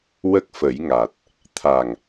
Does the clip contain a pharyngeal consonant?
no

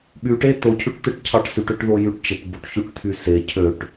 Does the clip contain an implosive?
yes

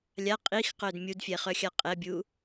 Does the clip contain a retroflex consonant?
no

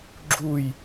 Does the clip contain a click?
yes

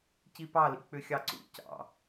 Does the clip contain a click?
yes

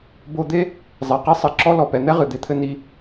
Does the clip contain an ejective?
no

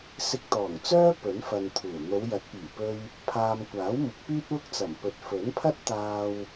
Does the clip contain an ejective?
no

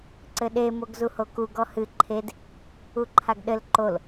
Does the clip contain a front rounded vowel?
no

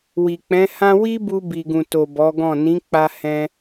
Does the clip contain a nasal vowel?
yes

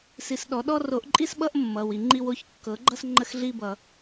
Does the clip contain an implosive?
yes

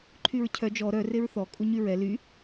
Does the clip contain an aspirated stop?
yes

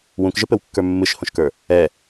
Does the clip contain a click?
no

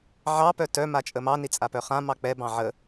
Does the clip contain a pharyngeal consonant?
yes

